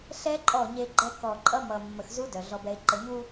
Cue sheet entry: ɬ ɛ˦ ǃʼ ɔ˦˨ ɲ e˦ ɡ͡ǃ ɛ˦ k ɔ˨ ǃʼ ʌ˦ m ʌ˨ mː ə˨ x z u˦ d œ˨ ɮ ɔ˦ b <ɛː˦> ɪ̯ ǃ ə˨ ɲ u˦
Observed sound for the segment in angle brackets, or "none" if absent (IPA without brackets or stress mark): ɛ˦